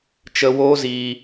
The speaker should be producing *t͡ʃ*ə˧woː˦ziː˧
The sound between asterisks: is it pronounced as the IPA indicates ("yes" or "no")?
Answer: yes